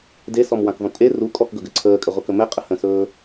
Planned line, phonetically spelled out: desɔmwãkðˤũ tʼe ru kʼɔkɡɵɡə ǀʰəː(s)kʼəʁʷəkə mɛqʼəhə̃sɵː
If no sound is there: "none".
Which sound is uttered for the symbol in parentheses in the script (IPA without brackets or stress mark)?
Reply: none